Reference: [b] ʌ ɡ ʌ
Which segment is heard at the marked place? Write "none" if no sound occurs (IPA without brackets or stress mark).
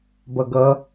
b